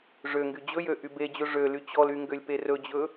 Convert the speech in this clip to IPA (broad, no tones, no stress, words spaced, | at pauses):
ʐøŋɡy d͡ʑɵjø ʔybed͡ʑɵ ʐø lyt͡ɕɔly ŋɡølʲperɵd͡ʑɵ